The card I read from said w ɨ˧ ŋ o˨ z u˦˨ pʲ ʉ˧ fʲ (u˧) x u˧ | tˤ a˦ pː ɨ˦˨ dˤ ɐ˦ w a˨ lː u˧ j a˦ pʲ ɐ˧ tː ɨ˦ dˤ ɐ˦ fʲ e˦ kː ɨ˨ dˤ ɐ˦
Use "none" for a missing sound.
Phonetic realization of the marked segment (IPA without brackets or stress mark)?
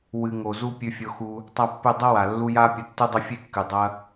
o˧